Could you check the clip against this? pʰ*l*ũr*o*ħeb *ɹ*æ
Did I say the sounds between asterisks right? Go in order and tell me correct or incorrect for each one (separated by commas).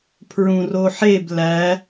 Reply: incorrect, correct, incorrect